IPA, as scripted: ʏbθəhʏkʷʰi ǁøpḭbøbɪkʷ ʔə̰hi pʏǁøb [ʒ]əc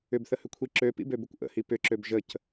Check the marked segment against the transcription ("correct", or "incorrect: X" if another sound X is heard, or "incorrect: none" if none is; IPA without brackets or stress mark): correct